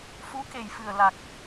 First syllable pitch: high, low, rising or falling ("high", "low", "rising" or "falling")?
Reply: rising